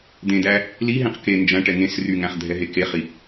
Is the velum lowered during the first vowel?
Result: yes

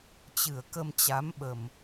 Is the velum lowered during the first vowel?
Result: no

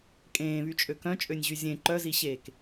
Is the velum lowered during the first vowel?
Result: yes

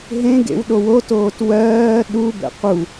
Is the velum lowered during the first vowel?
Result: yes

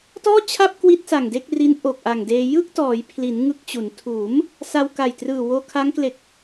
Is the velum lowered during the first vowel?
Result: no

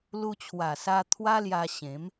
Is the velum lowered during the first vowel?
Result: no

